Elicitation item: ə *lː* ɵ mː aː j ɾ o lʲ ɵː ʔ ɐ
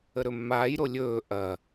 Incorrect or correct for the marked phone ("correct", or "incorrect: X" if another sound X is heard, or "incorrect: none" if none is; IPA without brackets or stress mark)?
incorrect: ɾ